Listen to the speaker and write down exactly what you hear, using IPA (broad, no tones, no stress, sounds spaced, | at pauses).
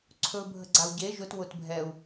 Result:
ǀʰ ɵ bʱ ə ɡ͡ǀ a u̯ ɟ e ʒ ʊ t w ʊ t bʱ ɛ u̯